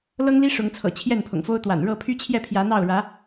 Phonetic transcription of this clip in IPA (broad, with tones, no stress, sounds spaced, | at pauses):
l ɤ˦ ŋ l i˦ ʂ ʊ˨˦ ŋ t͡sʰ ɤ̰˨˩ t͡ɕʰ j ɛ˥˨ n pʰ ʊ̰˨˩ ŋ f o˦ ʊ̯ t̪ w a̰˨˩ n ɻ ɤ˥˨ pʰ y˦ t͡ɕʰ j ɛ˥˨ pʰ j ä˨˦ n̪ ɑ˥˨ ʊ̯ ɻ ä˨˦